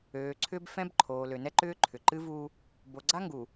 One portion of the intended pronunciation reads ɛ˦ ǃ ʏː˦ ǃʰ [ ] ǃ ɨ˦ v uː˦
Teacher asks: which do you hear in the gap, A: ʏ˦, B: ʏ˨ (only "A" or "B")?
B